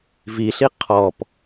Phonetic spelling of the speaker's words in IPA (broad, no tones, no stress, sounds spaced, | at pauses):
v i ɬ i qʰ ɔ p